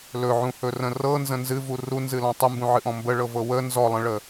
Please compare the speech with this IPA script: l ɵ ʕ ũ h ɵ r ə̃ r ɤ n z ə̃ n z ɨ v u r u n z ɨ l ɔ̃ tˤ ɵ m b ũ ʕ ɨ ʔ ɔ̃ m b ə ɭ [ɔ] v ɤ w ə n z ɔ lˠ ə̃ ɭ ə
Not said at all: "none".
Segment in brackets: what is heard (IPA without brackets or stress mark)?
ɤ